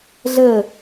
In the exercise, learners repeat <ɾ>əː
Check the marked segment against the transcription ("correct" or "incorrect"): incorrect